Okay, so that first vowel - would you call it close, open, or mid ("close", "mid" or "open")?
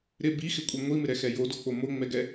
close